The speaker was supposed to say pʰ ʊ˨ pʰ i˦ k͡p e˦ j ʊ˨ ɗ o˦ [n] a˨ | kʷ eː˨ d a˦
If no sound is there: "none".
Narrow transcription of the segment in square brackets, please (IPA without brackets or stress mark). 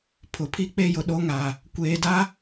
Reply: ŋ